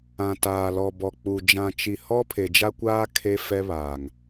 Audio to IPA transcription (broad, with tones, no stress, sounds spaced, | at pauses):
ã˨ t aː˨ l ɔ˨ b ɔ˨ k͡p u˨ d͡ʒ ã˨ t͡ʃ i˨ h ɔ˦ pʰ e˨ d͡ʒ a˦ kʷ aː˦ kʰ e˦ f ɛ˦ β aː˨ ŋ